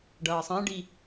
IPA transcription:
ɖ ʌː sˤ ã ɖ i

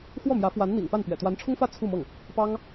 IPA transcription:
x w ɔ˥˩ m j ä˧˥ f w a˧˥ n n̪ ḭ˨˩ ŋ p a˥˩ n p ɥ ɛ̰˨˩ t̪ w a˧˥ n ʈ͡ʂʰ ʊ˥ ŋ f ä˥˧ t͡sʰ u˥˧ m ɤ˥˩ ŋ | p ɑ˥ ŋ

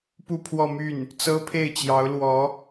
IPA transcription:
p u˥˧ pʰ w ɔ˥˧ m y˥˩ n | t͡s ɤ˥ pʰ e˥˩ ɪ̯ t͡ɕ j ɑ˧˥ ʊ̯ l w ɔ˧˥

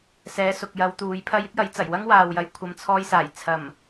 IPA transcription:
s ɛː˨˧ s ʊ˨ k̚ j ɐ˨˧ w t̪ uː˨˧ j pʰ ɐ˥ j ɪ˥ k̚ j ɐ˨˥ j t͡s ɐ˨˩ j w ɐ˥ ŋ w aː˨ w j ɐ˨˥ j kʷʰ ɐ˨ m t͡sʰ ɔː˧ j s aː˨˩ j t͡sʰ ɐ˨˩ m

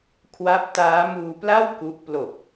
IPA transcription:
kʰ w a˦˥ p̚ t aː˦˥ m uː˧ p l a˥˩ w k u˦˥ ʔ p l o˨˩ k̚

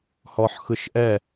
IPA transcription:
h ɔ ħ x ɯ ʃ ʔ ɛ

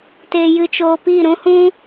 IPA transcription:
t eː˧ j ɨ˧ t͡ʃ oː˧ p i˦˨ ɾ ũ˦ h ũ˦

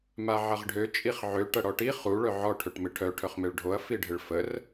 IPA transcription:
m a ʕ ɐ ʁ ɖʱ ø t͡ʃʼ i χ ʕ ø ʈ ɐ ɽ ɔ ʈ i χ u ɭ œ ʕ ɔ ʈʰ ø ʈ m ɪ ʈʰ œ ʈʰ œ χ m e ɭ ɖʱ o ɐ̯ f i ɖʱ ɪ ɭ f ə r

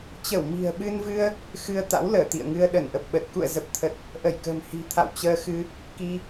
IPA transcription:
t͡ɕ ə˧˩ w m i̤˨˩ ə̯ ɓ ɨ˧ n v ɨ˧ ə̯ | x ɨ˧ ə̯ t̪ a̰˧˥ w l əː˧˩ t̪ ḭ˧˨ ə̯ ŋ ɨ˧ ə̯ ɗ ə˧˩ n ʔ ə˨˩ p̚ ɓ ə˨˩ t̚ k ṵ˧˨ ə̯ z ə˨˩ p̚ t̪ʰ ə˨˩ t̚ | ʔ ə˧˩ j k ə̤ː˨˩ m h i̤˨˩ t̪ʰ a̰˧˨ w t͡ɕ əː˧ x ɨ˧ | k i˧

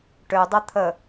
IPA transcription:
ʈ ø dˤ ɐ t̪ʰ ə

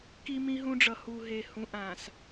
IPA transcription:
k i˦ m ĩ˦ ɦ ũ˦ ɖ͡ʐ ʌ˨ h u˨ ɦ e˨ h ũ˨˦ ʔ ã˨ s

